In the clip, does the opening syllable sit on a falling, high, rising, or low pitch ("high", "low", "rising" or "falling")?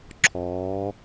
rising